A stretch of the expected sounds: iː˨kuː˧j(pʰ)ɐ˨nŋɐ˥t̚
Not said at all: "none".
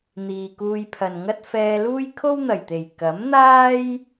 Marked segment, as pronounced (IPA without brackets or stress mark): pʰ